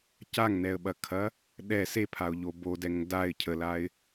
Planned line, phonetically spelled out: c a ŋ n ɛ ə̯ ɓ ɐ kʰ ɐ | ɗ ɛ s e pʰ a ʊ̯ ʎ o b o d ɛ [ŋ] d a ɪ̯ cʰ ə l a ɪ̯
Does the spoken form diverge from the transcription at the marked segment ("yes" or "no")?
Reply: no